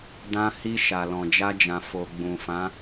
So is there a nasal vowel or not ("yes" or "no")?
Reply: yes